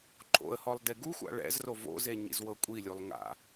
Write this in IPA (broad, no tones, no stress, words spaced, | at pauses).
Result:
ǃʰo̰ə̯hɔlˠ deɡuxʷa̰ ɭɛ̰zro vo̰ze ɲḭzwɤkʷʼilʲulˠ ŋa̰